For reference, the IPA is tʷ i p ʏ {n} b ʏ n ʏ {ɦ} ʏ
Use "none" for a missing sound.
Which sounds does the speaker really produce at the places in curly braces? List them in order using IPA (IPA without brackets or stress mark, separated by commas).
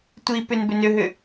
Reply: n, ɦ